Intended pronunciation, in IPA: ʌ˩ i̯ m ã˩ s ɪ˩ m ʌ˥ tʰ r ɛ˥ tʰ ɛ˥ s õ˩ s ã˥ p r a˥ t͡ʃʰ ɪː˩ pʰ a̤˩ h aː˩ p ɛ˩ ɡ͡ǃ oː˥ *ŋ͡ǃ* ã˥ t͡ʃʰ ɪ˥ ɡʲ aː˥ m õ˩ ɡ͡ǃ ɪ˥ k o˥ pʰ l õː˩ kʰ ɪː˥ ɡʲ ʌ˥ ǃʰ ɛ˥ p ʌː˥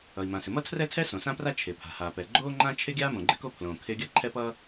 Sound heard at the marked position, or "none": ŋ͡ǃ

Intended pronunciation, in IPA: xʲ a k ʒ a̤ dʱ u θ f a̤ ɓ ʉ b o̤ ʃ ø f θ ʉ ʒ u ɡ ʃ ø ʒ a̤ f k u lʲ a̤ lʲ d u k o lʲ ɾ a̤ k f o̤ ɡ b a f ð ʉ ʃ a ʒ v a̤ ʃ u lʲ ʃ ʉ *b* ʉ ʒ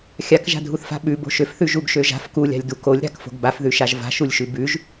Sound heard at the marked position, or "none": b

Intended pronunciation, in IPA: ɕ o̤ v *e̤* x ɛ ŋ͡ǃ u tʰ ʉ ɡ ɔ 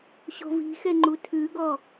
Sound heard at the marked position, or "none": i̤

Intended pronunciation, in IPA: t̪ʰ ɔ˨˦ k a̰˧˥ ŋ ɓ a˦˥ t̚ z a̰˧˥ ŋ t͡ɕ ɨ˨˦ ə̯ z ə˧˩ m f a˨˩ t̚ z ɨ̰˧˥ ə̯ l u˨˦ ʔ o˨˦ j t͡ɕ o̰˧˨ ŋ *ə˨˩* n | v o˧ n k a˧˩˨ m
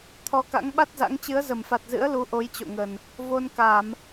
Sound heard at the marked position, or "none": ə˨˩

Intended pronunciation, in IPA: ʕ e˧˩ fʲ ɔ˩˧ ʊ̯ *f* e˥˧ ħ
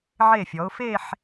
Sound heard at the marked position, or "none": f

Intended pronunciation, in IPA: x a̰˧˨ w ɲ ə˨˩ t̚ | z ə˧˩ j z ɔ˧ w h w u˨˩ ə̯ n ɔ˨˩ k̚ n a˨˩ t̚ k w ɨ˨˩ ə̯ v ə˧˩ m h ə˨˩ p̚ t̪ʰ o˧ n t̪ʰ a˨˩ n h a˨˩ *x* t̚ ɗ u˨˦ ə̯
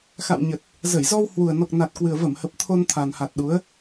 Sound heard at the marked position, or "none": none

